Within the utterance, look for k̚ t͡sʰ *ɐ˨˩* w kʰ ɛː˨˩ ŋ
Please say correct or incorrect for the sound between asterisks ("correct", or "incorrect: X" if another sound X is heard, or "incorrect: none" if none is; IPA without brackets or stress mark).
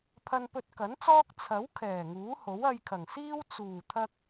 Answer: incorrect: ɐ˨˥